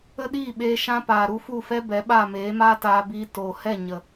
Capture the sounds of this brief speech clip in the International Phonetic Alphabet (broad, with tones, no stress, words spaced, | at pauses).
ə˦ɗiː˦˨ɓeː˧ ʃã˦paː˨ ɾu˧ fu˦˨fɛ˦ bɛ˨˦ɓa˦˨ meː˨˦maː˦taː˧biː˧ toː˨ hɛ˦˨ ɲə˨